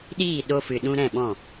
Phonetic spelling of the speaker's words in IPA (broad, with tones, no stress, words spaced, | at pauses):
ɗiː˦˨ ɗo˧fɨ˨ ɗũ˧ɾɛ̃˦˨ɓɔ̃˦˨